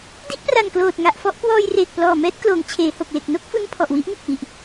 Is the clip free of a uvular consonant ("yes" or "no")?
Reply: yes